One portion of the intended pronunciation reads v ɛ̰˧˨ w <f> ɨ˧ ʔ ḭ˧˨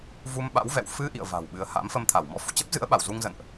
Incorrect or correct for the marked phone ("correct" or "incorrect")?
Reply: correct